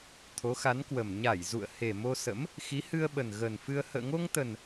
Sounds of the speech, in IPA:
t̪ʰ o˨˦ x a˨˦ n k w ə˨˩ m ɲ a˧˩ j z ṵ˧˨ ə̯ h e˨˩ m o˧ s ə̰˧˥ m | x i˨˦ h ɨ˧ ə̯ ɓ ə˨˩ n ɣ ə˨˩ n f ɨ˧ ə̯ h ə̰ː˧˨ ŋ o˧ ŋ t̪ ə˨˩ n

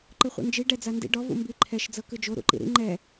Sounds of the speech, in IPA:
ǃ ɯ χʷ ḭ n d͡ʒ i ɖ ɛ d͡z a n d ḭ ɖ ɔ v ṵ m b i ǃʰ ɛ ʃ d͡z ɤ k ɯ d͡ʒ o ɾ ṵ ǃ ḭ ɾ ḭ ŋ͡ǃ ɛ

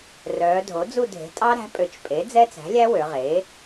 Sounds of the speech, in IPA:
r œː˩˧ dʱ o˩˥ d͡z u˦˨ dʱ e̤˩˥ tʼ ɑ˦˥ ɾ æ̤˩˥ pʼ ø˩˧ t͡ʃ pʼ e˩˥ d͡z ɛ˦˥ t͡s æ̤˩˥ lʲ æ˦˥ w ø˩˧ ʁ eː˩˥

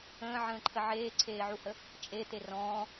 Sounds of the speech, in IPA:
ə̃ː ʕ ə̃ː ǃʰ ə ʕ eː ǀʰ eː ʕ u h ə | t͡ʃʼ e t̪ e r ɔ̃ː

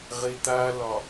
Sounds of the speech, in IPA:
ʁ e t̪ a l ɒ

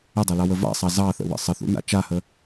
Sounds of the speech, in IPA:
ə dˤ a l ɑ w ə v a̰ sˤ ɑ z ɑ θ ə̰ w ə̰ sˤ ə θ ṵ n a̰ t͡ʃ a h ə

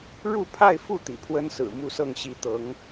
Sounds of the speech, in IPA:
ɻ u˥˧ pʰ a˥˧ ɪ̯ f u˥˩ t̪ ḭ˨˩ pʰ w ə˥ n s ɹ̩˨˩ m u˥˧ s ɤ˥˩ ŋ ɕ i˧˥ t̪ ɤ˧˥ ŋ

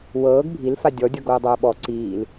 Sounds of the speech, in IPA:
w ɤː ɡ bʱ i l f a dʲ ɔ dʲ ɤ ɡ oː dˤ oː ɓ ɔ ǀ iː l

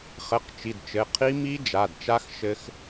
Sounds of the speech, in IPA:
χ ɘ˩˧˩ q t͡ʃ i˩˧˩ d t͡ʃ ɘ˩˧˩ qʰ i˦˥ m i˦˥ d͡ʒ a˩˧˩ d t͡ʃ a˦˥ x ʃ ɘ˦˥ x

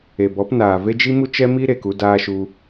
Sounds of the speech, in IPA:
e˨ b ɔ˨˦ p n aː˨ v e˦ d͡ʒ i˦ m u˦ t͡ʃ ɛ˦ m i˦ ɾ e˧ k u˧ d aː˧ ʃ u˧

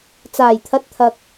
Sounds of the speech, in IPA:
t͡s aː˨˩ j t̪ʰ ɐ˨˥ t̚ t̪ʰ ɐ˨ k̚

